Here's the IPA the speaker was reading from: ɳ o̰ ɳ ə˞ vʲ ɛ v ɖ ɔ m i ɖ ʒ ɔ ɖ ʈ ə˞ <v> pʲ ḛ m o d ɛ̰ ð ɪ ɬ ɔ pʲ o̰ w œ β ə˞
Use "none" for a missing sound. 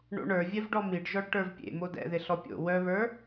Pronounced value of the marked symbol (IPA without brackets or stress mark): v